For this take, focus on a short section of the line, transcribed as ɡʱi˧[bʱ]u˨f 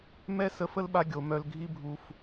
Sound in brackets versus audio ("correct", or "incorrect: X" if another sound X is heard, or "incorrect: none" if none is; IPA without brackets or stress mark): correct